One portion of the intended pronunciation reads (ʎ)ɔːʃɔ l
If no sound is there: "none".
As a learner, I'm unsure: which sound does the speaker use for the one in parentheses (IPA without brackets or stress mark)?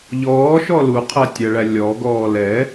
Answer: ʎ